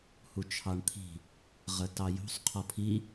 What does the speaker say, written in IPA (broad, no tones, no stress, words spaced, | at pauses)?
hut͡ʃʰɑɳt̪ʰi̤ | ʁətɑjṳsˤ qʰɔpʰi